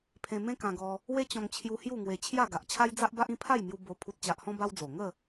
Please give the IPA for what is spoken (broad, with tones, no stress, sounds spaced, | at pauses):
pʰ ẽ˧ m ẽ˦ k ã˧ ɡ ɔ˧ | w e˦ t͡ɕ ɔ̃˧ ŋ t͡ɕʰ j u˧ h j u˥˧ ŋ w e˧ t͡ɕʰ j a˥˧ ɡ a˨ ʔ t͡ɕʰ a˦ j d͡z a˦ ʔ b a˦ ʔ ĩ˦ pʰ a˥˧ j m j u˧ b o˧ pʰ u˨ t̚ t͡ɕ a˨ ʔ h ɔ̃˧ b a˦ w d͡z o˨˩ ŋ ə˥˧